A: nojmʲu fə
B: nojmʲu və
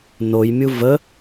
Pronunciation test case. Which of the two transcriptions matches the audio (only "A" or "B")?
B